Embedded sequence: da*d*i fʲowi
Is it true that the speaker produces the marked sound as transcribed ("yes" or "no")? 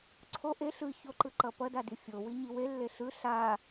yes